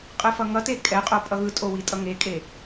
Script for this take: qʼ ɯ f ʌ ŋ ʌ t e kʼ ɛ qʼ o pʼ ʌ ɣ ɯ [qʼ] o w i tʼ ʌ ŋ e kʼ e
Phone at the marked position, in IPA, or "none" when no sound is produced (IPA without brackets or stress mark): tʼ